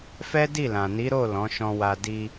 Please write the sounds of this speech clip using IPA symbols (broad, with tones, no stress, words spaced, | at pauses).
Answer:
fɛ˦di˦˨lã˨ ni˨˦ɾo˦˨ lɔ̃˨˦ʃɔ̃˧wa˧ di˧